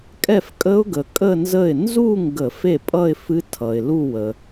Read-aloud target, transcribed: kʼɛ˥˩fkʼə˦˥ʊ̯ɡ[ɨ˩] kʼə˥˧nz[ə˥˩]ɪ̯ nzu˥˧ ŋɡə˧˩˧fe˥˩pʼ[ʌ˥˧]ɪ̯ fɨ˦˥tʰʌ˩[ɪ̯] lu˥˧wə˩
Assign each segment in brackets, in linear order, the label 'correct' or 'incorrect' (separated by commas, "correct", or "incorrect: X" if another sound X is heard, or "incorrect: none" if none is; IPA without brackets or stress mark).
incorrect: ə˩, correct, correct, correct